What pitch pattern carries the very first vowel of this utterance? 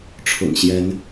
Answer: low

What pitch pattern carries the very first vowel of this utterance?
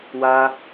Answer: high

